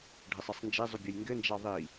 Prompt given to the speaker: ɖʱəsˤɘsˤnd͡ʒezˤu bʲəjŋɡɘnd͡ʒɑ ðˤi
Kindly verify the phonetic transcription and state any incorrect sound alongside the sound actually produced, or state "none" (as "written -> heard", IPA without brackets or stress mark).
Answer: none